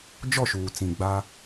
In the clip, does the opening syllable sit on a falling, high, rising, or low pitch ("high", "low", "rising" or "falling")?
falling